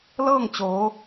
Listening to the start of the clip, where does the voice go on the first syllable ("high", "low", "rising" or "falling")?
falling